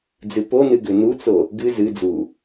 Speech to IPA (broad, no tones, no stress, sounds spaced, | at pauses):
d͡z ɨ p o n ɨ ɡ ʏ n u t͡s o | ɡ ɨ z ɨ d͡z u